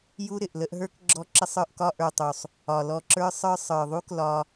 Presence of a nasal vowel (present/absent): absent